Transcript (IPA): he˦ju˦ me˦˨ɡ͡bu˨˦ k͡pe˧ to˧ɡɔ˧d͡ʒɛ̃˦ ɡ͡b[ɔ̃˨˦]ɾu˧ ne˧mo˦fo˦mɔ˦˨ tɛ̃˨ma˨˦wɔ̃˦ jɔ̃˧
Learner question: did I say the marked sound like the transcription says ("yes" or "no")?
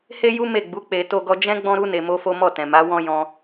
no